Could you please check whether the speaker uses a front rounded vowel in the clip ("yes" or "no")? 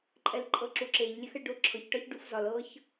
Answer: no